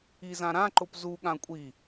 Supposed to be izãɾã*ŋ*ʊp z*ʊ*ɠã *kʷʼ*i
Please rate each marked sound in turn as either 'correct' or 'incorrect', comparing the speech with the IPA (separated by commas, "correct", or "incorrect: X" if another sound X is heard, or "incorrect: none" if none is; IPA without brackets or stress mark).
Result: incorrect: ǃ, incorrect: u, correct